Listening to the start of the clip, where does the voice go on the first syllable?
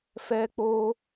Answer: high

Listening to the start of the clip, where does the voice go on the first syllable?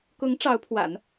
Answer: rising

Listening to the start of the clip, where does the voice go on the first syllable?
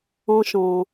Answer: high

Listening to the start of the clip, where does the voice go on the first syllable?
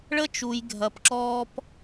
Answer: high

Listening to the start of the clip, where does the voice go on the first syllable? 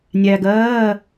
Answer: low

